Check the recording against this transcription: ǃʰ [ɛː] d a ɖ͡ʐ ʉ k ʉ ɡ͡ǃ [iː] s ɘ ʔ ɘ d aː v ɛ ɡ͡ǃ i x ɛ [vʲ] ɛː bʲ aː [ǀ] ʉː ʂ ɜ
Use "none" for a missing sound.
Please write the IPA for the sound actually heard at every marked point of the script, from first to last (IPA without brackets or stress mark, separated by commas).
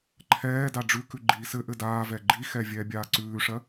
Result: ɛː, iː, vʲ, ǀ